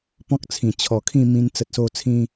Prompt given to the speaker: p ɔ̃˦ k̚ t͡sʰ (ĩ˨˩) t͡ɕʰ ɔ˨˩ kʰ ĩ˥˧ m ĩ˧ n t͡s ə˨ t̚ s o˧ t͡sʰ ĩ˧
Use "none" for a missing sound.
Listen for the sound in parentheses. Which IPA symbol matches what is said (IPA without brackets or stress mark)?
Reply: ĩ˨˩